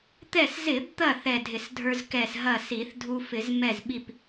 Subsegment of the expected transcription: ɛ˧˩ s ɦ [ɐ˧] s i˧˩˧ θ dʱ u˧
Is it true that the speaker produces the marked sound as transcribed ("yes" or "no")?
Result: no